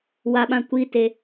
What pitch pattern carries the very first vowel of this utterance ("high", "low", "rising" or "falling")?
low